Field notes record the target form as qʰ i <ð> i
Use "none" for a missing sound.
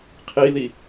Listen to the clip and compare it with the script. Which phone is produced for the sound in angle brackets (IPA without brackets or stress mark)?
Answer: ð